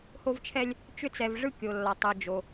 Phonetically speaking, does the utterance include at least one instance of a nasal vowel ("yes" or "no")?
no